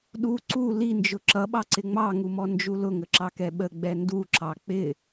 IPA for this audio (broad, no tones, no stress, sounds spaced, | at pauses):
ɗ u ǀ u l i n d͡ʒ ʊ ǁ ʌ ɓ ɑ ǀ ɪ ŋ͡m ɑ ŋ u m ɔ n d͡ʒ u l ʊ ŋ ə ǁ ɑ k ɛ ɓ ə ɡ͡b ɛ n d u ǁ ɑ k͡p ɪ